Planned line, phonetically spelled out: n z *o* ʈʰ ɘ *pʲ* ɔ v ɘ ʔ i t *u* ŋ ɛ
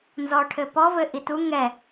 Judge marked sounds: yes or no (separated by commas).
no, no, yes